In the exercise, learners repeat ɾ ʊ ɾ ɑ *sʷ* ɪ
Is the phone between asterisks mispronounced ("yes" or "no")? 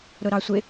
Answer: no